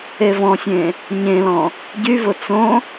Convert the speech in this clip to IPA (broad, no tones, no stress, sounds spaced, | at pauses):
e v ɔ̃ sʲ ẽ | ɲ ẽ l ɔ̃ | ɟ y v ʊ t͡s õ